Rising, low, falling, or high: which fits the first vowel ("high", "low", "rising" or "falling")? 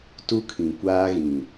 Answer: high